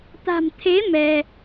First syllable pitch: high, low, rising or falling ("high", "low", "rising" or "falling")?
low